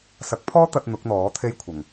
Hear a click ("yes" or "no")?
no